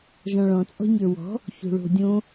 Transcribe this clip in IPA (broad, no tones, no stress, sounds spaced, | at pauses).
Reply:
ʒ ɔ̃ ɭ ɔ̃ t͡sʼ ɔ̤ ɲ ə˞ w ɔ̤ | ç o̤ ɭ o̤ dʲ õ